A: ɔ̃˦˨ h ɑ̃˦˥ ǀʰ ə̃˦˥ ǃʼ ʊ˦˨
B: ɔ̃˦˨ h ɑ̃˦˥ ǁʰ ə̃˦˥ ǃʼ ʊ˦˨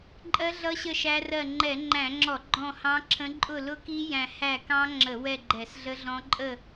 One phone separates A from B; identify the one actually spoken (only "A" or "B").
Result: B